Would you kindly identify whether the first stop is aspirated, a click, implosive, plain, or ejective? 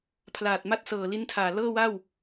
aspirated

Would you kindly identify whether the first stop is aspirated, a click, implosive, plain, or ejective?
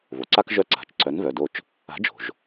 click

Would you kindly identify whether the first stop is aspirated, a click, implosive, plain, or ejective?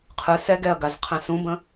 aspirated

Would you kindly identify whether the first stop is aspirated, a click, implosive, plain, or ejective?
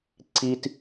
click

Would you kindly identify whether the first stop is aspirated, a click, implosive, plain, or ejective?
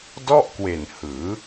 plain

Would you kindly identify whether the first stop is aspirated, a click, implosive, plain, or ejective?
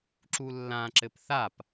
click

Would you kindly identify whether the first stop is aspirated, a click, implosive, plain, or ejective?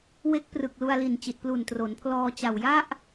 plain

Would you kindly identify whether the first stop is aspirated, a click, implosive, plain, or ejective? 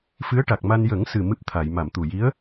plain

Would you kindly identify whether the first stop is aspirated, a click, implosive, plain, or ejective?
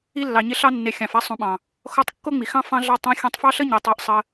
implosive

